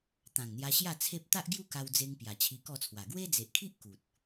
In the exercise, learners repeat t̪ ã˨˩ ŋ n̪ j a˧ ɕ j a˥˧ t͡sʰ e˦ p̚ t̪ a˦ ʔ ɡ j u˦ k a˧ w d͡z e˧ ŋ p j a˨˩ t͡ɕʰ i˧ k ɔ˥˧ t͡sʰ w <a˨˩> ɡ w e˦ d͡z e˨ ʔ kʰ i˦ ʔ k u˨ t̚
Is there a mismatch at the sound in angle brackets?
no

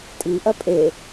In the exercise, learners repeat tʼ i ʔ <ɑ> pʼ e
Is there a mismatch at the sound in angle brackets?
yes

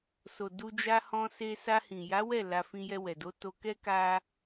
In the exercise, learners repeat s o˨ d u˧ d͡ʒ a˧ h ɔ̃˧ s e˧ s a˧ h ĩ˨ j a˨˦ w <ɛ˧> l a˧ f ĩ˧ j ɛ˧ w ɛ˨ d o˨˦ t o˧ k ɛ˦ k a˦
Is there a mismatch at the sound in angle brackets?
yes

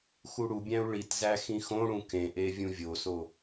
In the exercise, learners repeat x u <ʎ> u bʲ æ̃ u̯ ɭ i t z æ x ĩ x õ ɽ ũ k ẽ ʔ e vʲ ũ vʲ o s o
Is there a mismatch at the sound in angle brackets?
yes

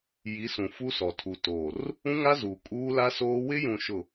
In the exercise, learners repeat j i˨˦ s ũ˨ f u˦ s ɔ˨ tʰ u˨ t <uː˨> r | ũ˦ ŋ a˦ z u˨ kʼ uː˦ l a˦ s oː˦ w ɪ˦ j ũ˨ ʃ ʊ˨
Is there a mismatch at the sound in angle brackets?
yes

